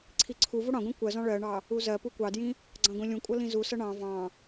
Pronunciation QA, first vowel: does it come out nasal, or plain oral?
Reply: oral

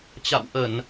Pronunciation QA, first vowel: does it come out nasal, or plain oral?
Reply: oral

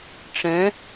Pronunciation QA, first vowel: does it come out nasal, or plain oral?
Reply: nasal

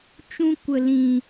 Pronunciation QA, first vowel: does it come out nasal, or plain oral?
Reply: nasal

